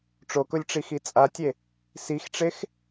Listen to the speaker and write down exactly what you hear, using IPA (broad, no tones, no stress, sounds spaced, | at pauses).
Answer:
ʈ͡ʂ o k ʊ lʲ ʈ͡ʂ i x i t͡sʼ a tʲ e | s i x ʈ͡ʂ e x